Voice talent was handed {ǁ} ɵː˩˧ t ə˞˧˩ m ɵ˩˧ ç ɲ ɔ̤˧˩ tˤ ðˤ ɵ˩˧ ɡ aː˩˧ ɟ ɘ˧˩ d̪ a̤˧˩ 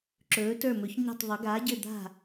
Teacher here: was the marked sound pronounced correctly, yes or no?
yes